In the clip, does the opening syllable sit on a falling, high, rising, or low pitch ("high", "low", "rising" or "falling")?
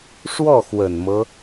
falling